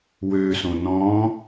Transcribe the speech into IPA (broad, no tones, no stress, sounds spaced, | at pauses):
w ø s õ n ɔ̃